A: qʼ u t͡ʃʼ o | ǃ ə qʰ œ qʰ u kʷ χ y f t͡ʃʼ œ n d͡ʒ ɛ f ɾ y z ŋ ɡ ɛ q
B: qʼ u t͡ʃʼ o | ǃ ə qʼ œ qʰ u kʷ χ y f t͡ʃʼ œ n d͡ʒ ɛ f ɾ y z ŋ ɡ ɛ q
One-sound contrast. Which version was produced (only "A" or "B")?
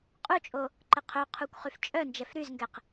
A